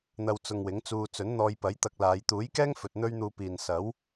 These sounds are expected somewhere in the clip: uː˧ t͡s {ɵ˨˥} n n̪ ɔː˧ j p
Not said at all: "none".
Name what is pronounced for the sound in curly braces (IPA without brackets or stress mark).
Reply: ɵ˨˥